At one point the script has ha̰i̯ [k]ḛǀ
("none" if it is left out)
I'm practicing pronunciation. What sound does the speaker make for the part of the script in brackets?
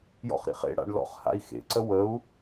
x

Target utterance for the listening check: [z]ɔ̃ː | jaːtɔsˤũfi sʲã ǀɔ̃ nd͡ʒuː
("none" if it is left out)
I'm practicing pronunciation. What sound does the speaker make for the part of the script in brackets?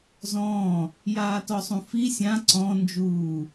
z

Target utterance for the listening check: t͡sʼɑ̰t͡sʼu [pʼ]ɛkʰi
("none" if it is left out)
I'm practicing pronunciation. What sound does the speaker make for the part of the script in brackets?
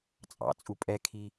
pʼ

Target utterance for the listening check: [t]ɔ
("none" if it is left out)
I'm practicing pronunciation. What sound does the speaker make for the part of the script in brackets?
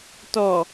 t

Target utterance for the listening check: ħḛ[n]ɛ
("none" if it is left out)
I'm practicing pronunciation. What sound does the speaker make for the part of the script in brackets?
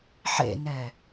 n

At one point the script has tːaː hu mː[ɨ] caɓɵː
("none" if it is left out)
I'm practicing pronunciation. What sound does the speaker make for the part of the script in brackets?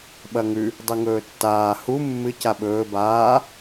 ɨ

